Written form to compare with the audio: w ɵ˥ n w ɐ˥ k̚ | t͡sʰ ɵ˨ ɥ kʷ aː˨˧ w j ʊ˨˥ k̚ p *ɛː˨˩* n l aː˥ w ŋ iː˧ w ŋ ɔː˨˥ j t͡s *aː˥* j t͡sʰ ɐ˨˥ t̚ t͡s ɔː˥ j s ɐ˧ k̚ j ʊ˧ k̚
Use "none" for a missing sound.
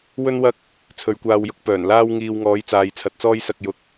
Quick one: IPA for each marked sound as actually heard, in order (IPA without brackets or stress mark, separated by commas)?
œː˨˩, aː˨